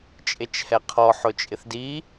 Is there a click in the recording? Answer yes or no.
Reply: no